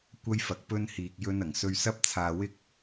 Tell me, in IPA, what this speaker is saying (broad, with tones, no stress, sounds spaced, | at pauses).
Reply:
kʷ ɐ˥ j f ɐ˨ k̚ p ɵ˥ n h iː˨ k̚ j ɵ˥ n ɐ˨˩ ŋ s ɵ˧ ɥ s ɐ˥ p̚ t͡sʰ aː˨ w ɪ˥ k̚